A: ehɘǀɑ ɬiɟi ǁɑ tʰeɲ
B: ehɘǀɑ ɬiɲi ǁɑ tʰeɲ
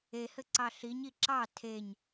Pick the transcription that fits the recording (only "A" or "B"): B